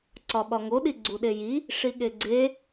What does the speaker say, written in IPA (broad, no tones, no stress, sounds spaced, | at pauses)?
ǀ ɒ ɓ ɒ ŋ o ɗ i ɡ͡ǀ u ɗ e j i | ʂ i ɠ e ɡ͡ǀ e